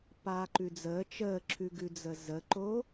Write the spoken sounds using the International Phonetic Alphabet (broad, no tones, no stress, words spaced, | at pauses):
paːǃʉd͡zəː t͡ʃəːǁʰʉɡʉd͡zə zəǃo